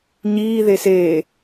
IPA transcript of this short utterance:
ɲ iː ð e s e

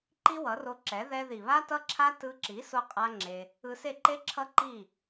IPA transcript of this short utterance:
ǃ i˦ w ʌ˨˦ r o˧ ǁ ɛ˨˦ ð ɛ˧ ð i˨ β a˦ t ʌ˦ ǁʰ a˦ t ɯ˧ ǁ i˨˦ s o˦ qʼ a˦ ŋ͡ǁ e˧ | ɯ˧ s e˦˨ ǃ e˦ ǁʰ ʌ˦ ǃ i˦˨

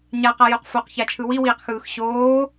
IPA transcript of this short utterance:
ɲ a q a j o q f o q ç a t͡ʃʰ ɯ w i w iː q x ɯː x ɕ oː

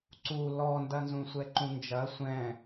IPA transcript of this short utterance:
ǀ u l ɔ n d ɐ n z ũ sʷ ɛ ǃ ũ n d͡ʒ ɐ sʷ ɛ̃

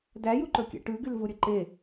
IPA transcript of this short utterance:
d æ j u ǃ ɵ kʲ ɛ̰ ʈ ʉ ɡ y l v u ɾʲ ɵ ǃ e

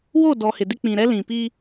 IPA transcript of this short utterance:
w o˦˨ d ɔ˨ h ɪ˨ d ɪ˦ k͡p ĩ˨ ɾ ɛ˦ l ĩ˨ p i˦

